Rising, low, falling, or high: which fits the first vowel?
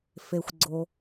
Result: low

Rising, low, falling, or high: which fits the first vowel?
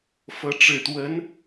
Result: rising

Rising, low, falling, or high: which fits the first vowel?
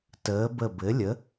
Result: rising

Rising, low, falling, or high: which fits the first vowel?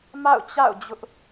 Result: falling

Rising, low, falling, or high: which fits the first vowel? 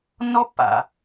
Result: high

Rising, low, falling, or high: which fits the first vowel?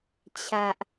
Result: high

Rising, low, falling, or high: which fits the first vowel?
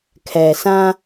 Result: low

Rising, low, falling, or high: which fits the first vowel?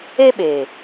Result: high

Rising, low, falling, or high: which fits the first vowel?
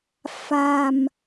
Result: low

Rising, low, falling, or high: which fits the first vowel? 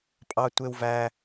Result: low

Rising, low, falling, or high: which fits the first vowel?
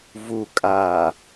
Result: low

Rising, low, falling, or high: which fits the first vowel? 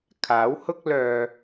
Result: rising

